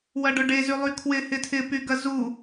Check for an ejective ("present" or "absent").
absent